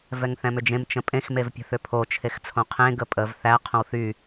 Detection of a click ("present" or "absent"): absent